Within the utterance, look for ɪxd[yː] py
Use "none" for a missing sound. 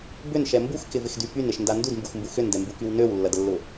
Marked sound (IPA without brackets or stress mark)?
y